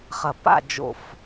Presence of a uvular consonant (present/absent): present